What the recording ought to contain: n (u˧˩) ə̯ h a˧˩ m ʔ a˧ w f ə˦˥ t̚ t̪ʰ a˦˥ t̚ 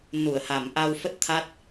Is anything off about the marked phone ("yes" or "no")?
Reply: no